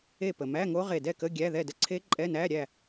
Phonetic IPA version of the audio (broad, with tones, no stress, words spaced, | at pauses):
e˥˨ pə˩mæ˧˥˧ŋo˦˥ ʁe˧˩dɛ˥˨kə˧˥˧ ɡʲæ˧˥˧ðɛ˥˨də˥˨ ǀʰe˦˥ ǃʼɛ˧˥˧næ˧˥˧ ɾʲæ˥˨